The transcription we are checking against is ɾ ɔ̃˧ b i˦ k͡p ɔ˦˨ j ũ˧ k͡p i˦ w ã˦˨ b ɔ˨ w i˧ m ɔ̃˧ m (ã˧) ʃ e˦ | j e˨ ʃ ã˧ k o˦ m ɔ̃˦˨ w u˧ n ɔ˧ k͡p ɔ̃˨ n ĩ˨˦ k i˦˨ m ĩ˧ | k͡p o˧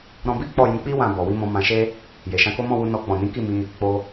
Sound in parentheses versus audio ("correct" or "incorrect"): correct